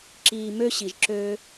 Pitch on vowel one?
low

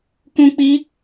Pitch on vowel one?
high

